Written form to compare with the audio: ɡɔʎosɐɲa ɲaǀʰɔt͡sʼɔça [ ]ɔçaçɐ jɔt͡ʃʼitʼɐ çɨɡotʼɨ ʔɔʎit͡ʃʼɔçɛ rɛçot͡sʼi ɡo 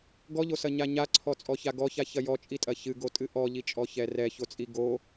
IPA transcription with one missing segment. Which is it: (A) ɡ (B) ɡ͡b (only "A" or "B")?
A